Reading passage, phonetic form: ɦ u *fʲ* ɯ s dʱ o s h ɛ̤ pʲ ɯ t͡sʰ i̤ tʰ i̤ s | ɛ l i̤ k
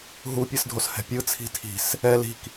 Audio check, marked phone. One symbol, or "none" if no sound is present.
pʲ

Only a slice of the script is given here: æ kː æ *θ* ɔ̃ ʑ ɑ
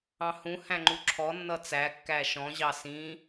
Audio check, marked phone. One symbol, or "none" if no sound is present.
ʃ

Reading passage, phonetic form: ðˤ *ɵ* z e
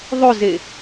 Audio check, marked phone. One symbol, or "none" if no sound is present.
ɵ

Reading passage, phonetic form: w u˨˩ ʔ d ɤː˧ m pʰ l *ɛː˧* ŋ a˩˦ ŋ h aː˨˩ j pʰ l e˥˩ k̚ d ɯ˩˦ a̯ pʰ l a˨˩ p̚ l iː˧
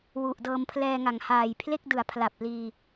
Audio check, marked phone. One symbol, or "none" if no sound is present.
ɛː˧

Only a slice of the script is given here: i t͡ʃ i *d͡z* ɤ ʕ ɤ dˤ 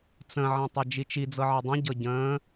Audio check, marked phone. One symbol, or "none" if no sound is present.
d͡z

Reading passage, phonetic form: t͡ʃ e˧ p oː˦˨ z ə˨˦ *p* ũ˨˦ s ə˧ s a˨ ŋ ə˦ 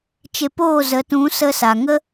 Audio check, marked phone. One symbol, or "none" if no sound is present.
t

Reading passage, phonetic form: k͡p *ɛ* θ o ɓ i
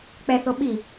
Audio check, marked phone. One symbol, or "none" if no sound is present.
ɛ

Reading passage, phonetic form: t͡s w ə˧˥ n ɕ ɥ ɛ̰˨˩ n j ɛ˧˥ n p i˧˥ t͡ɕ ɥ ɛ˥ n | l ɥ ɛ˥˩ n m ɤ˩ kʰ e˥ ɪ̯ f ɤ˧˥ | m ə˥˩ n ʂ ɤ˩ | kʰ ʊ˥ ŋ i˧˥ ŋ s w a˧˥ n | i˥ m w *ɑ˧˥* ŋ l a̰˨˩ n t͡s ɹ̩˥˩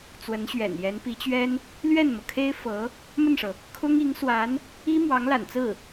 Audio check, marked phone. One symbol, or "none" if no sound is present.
ɑ˧˥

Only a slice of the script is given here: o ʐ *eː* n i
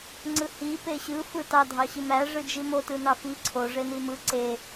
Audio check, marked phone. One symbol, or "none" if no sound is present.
e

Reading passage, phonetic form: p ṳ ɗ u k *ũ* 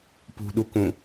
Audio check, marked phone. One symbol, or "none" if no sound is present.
ũ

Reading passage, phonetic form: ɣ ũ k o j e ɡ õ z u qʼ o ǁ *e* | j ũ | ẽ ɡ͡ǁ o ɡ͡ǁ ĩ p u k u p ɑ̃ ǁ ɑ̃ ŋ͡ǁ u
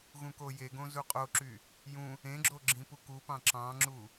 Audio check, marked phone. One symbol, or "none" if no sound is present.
y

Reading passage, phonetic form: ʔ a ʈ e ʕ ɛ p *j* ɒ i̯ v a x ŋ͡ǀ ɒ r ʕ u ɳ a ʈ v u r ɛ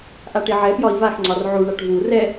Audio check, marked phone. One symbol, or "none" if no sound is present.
j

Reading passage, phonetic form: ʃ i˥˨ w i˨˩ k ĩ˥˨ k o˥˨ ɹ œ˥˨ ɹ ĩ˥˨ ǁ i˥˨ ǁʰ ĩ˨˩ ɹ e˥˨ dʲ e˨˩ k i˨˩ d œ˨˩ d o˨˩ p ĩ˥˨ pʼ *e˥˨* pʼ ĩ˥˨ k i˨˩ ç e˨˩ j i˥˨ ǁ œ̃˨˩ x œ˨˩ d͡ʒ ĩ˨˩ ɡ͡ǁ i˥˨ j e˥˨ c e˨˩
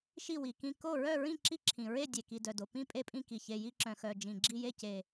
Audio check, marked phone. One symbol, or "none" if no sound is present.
e˥˨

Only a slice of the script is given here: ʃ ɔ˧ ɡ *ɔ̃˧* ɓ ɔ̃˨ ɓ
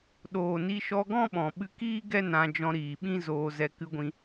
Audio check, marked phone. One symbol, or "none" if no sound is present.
ɔ̃˦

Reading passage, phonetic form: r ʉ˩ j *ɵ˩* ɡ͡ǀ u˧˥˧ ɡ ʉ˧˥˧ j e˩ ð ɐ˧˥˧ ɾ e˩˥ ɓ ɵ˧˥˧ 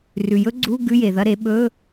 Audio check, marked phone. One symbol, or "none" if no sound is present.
ɵ˦˥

